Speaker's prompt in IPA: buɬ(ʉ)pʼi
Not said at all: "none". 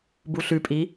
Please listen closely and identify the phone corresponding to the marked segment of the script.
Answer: ʉ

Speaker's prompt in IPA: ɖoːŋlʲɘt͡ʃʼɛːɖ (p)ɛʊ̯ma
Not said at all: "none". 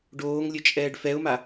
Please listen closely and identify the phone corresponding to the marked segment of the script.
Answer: f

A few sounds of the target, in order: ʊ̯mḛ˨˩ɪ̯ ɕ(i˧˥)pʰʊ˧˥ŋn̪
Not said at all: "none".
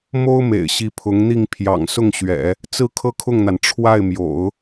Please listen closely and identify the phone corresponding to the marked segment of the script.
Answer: i˧˥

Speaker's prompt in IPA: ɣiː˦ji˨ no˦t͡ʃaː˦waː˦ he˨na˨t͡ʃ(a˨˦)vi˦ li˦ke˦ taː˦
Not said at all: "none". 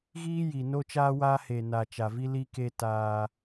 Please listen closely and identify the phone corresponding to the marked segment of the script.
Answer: a˨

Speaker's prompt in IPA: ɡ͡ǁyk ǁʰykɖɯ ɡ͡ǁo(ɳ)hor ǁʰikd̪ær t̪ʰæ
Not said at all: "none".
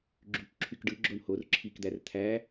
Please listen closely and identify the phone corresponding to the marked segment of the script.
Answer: ɳ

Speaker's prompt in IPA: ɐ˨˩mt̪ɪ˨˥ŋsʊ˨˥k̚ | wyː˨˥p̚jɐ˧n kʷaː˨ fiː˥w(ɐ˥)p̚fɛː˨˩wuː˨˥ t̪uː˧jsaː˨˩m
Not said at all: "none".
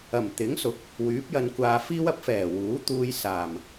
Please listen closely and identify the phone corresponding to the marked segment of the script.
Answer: ɐ˥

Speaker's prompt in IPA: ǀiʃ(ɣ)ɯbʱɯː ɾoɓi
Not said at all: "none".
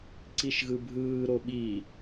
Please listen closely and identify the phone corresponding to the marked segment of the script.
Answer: ɣ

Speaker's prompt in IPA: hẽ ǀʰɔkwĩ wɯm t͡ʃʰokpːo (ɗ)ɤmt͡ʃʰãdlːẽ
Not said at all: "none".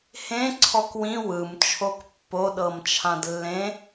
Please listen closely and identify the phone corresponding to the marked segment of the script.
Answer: ɗ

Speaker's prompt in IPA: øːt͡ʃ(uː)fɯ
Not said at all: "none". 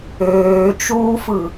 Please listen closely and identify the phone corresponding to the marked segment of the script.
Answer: uː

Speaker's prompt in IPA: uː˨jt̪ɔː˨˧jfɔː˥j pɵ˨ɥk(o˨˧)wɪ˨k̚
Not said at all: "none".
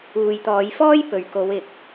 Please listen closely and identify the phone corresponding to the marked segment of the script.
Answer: o˨˧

